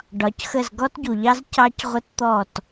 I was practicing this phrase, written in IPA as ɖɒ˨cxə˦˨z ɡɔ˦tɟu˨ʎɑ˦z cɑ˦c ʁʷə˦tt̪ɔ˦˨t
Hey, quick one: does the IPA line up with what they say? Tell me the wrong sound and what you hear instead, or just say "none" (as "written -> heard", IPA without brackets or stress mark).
none